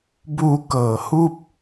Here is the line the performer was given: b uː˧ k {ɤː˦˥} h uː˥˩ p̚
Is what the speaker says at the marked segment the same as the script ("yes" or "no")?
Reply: no